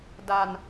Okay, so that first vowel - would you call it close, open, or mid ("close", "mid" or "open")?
open